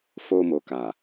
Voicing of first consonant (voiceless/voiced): voiceless